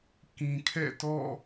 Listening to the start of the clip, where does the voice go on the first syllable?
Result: low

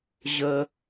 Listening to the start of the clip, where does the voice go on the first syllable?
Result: high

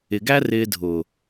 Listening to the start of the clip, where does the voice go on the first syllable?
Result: low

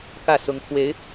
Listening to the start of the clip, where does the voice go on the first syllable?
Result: falling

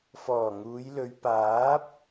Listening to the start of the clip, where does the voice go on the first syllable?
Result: low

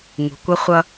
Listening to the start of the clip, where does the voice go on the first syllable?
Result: low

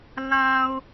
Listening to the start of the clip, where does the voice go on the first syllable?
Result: low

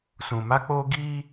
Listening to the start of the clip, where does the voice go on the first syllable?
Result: low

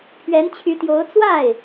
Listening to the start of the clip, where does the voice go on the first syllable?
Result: rising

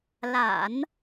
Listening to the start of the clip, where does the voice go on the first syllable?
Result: low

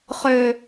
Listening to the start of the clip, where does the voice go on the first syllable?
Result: low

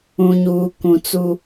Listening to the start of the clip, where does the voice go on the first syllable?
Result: low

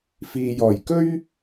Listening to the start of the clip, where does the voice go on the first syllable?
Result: low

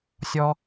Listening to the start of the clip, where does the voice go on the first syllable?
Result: high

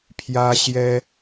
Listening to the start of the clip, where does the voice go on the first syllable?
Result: high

